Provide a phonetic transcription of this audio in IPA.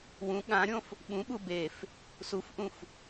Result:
w ũ ɠ ã ɾʲ õ f | ɓ ũ ɓ u b e f | s u f ʔ ũ f

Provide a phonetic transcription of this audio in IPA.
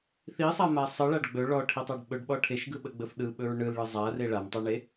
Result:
θ i sˤ a m a sˤ ɯ ɭ a ɖ ɡ͡b ɵ ɭ ɔ ʈʰ i tˤ a ɖ ɓ ɵ ɖ ɓ ɔ ʈʰ e ʃ ɡ ɯ ɓ ə ɡ͡b ə f ɗ ɯ ɓ ɵ ɹ ɳ ɯ l ɭ ɯ zˤ a r e ɭ a m tˤ a ɳ e

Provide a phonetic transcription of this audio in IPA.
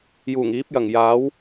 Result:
j uː˨˩ ŋ iː˨˥ p̚ j ɐ˨˩ ŋ j aː˨˥ w

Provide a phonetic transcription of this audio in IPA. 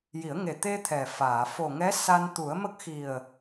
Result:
j i˨˩˦ ə̯ ŋ e˨˩ t̪ e˧ t̪ʰ ɛ˨˩ f aː˨˩˨ f o˨˩ ŋ ɛ˧˥ s a˧ n t̪ u˨˩˦ ə̯ m ə˦˥ k̚ x i˨˩ ə̯

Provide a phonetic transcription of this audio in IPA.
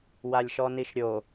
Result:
w a lʲ ʃ ɔ n i ʃ ɾʲ o

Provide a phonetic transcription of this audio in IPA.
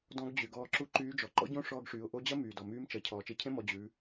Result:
d ɔ̃˧˥ ɡ d͡ʑ y˩ ɡ ɔː˧ ǁ u˧˥ ǃ yː˧˥ d͡ʒ ɔ˩ ǃ ɔ̰˥ ɟ õ˥ ʂ ɔː˧ ɡ ʂ yː˩˧ ʊ̯ ʔ o˧˥ d͡ʑ ɐ˥ m yː˩ d ɔ˩ m yː˧˥ m t͡ʃ ɐ˩ cʰ ɔː˩ t͡ʃ e˧ cʰ ẽ˥ m ɔ˩˧ d͡ʑ ʉ˩˧

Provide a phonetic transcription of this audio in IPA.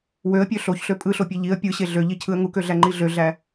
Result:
w ø ə̯ pʲ ø ɬ o ç ɬ ø pʼ ɯ ɬ o pʲ e ʎ i ə̯ pʲ ɯ ɕ e ɮ ø ʎ i cʰ ɯ ə̯ ŋ u k ø ɮ æ ŋ͡ǃ i ɮ ø ɮ æ

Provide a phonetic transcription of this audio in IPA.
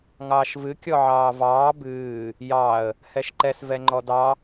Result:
ŋ ɑː ʃ v ɨ kʲ ɔ ʕ ɑː v ɑː b ɨː | j ɑ ə̯ | h ɛ ʃ ǃ ɛ s v ɛ ŋ͡ǃ ɔ d ɑ

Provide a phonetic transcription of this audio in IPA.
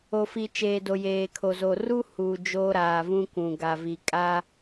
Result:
o˨ f i˨ t͡ʃ eː˨ d o˨ j eː˨ kʰ o˨ z o˨ r u˦ h u˨ d͡ʒ oː˦ ɾ aː˨ v ũ˦ kʷ ũ˨ ɡ a˨ v i˨ kʼ aː˦

